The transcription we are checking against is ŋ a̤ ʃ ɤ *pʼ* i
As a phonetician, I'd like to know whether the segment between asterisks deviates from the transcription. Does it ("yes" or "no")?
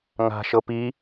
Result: yes